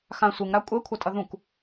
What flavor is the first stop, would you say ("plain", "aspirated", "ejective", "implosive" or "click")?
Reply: ejective